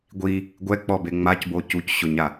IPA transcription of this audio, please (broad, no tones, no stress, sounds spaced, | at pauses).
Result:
ɡʷ i | ɡʷ ɛ k͡p ɔ b e ŋ͡m a c b o c u c ɕ ʊ ɲ a